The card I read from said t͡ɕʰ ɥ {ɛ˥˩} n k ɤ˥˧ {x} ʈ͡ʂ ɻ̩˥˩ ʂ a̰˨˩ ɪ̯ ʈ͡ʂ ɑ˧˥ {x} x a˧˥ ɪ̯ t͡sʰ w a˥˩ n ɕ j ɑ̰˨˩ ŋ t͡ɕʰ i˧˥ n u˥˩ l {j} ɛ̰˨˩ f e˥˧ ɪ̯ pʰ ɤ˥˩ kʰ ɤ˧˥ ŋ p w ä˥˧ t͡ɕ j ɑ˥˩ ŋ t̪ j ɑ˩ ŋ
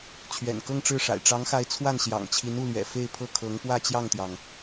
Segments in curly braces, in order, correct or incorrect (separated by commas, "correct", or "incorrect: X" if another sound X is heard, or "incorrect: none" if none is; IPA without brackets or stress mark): incorrect: ɛ̰˨˩, incorrect: ŋ, incorrect: ŋ, incorrect: ɥ